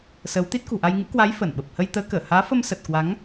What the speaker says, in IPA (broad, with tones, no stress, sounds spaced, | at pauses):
s ə˨˦ w t̪ i˦˥ t̚ k ṳ˨˩ ʔ a˧ j ŋ ɨ̰˧˥ k w a˨˦ j f ə˧˩ n ɓ ə˨˩ p̚ h ə˧ j t̪ əː˨˦ k əː˧˩ h aː˨˦ f ə˧ m s ə˨˩ t̚ k w a˨˦ ŋ